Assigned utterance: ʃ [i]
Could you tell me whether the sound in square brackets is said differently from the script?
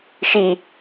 no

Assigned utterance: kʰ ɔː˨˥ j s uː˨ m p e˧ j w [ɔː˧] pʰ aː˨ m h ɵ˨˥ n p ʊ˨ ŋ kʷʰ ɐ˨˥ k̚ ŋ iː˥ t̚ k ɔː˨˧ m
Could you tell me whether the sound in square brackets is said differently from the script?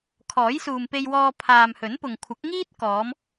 no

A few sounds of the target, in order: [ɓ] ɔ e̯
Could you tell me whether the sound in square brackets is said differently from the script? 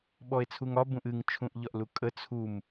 no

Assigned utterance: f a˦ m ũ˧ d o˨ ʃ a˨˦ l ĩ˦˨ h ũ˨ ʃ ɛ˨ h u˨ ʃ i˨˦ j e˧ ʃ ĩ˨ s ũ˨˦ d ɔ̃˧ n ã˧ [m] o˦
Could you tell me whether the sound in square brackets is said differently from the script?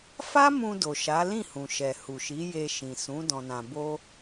yes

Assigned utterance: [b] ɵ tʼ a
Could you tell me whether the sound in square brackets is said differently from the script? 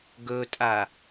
yes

